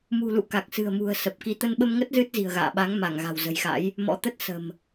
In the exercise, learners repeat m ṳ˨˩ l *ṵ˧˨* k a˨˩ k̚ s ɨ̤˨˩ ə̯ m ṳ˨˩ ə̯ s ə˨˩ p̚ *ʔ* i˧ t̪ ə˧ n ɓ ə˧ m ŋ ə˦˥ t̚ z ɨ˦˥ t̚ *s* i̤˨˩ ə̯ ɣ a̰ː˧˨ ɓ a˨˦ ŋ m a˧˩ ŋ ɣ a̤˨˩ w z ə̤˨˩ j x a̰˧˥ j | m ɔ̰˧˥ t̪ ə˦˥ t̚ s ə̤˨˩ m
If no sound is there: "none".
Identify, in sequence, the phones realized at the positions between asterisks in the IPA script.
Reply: ṵ˧˨, k, z

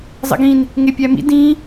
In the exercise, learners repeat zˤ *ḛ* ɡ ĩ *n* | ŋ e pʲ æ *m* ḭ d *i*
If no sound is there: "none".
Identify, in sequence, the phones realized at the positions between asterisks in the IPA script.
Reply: ḛ, n, m, ĩ

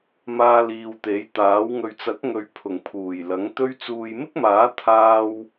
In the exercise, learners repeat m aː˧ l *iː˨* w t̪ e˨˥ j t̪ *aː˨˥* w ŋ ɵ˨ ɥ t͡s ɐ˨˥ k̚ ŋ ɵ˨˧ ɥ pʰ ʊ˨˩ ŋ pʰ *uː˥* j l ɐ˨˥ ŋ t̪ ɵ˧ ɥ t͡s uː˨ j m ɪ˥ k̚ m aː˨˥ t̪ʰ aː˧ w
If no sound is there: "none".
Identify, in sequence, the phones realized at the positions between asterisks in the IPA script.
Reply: iː˨, aː˨˥, uː˨˩

